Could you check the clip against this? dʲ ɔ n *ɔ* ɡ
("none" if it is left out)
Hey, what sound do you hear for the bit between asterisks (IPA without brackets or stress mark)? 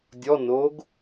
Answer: o